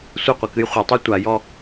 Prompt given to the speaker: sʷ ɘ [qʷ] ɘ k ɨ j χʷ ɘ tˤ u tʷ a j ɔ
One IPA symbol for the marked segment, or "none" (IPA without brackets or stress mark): qʷ